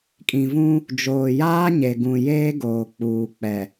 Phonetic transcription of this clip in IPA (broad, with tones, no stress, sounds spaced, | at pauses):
kʼ ĩ˨ v ũ˦ | d͡ʒ oː˨ j aː˦ ɲ e˨ ɡ ũ˨ j eː˦ ɡ oː˨ k͡p uː˨ k͡p ɛ˨